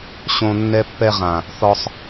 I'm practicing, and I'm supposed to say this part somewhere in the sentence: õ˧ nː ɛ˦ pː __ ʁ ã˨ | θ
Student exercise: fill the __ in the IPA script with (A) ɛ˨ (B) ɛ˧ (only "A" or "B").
B